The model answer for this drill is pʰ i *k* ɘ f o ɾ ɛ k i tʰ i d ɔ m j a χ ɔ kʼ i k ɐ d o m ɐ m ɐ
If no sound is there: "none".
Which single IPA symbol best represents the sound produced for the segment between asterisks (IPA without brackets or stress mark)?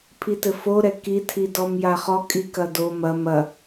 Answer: t